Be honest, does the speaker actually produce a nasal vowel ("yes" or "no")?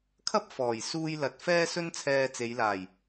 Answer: no